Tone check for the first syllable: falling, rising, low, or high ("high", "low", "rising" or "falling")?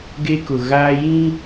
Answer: high